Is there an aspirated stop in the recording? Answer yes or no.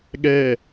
no